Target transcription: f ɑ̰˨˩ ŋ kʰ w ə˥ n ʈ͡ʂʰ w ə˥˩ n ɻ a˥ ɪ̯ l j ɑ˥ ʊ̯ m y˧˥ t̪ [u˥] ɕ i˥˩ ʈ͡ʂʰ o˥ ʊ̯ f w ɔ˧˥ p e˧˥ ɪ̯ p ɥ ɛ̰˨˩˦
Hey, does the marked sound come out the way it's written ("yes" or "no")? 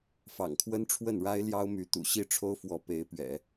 no